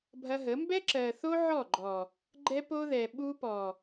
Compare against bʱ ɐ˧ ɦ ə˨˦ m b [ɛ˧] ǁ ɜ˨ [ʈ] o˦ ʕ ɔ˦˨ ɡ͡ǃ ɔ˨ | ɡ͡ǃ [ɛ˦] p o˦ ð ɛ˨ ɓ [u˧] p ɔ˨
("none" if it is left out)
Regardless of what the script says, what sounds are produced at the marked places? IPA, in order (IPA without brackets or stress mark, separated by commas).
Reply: ɛ˦, θ, ɛ˦, u˧